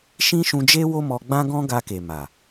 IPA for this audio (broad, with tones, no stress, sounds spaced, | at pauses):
ʃ ĩ˦ ʃ ũ˧ d͡ʒ e˦ w o˦ m ɔ˧ ɡ͡b ã˦ ɡ ɔ̃˦ ɡ a˧ k e˨ m a˨